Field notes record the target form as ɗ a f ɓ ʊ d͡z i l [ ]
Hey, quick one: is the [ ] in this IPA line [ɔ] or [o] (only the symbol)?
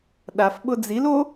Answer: o